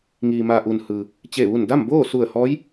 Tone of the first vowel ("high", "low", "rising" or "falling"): low